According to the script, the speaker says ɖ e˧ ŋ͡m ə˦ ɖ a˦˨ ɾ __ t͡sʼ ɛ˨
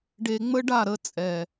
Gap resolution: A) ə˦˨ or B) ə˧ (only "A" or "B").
B